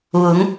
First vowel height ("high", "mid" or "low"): high